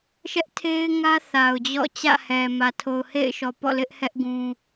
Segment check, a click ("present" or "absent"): absent